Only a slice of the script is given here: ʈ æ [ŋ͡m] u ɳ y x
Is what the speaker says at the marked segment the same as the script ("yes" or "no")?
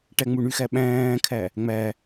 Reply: yes